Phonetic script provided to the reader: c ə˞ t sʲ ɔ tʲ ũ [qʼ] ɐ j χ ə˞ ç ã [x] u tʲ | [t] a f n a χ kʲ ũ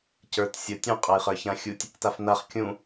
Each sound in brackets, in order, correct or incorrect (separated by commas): correct, incorrect, correct